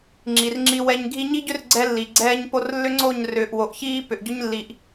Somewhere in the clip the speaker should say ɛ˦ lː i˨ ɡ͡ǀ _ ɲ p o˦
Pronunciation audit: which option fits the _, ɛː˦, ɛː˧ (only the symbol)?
ɛː˦